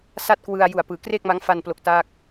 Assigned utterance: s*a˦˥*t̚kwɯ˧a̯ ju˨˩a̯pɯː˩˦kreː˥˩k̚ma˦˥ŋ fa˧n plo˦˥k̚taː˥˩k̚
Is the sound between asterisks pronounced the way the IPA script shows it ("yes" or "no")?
no